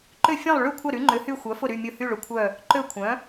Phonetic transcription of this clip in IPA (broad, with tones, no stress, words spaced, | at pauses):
ǃʏ˦˨fʲẽ˦˨lˠ ɭy˦˨kʷʰɐ˦˨ ɾy˨˥ŋ͡ǃʏ˨˥hy˦˨ xʷœ˨˥fʊ˦˨ɾy˦˨ mʲʊ˦˨hy˦˨ɭʊ˨˥kʷʰœ˦˨ | ǃø˦˨ kʷʰœ̃˨˥